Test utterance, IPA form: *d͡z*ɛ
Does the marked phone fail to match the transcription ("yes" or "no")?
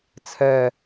yes